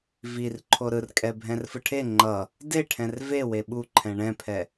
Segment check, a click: present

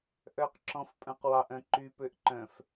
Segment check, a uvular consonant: present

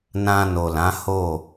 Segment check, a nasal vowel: present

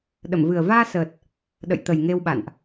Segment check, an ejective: absent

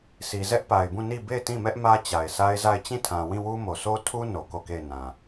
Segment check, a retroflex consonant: absent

